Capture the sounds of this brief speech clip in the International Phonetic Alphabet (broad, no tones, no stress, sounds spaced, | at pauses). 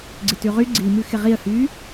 ɡ͡ǀ ɪ t ʉ ʁ y ɡ͡ǀ i m ʉ x ɪ ʁ i ə̯ h yː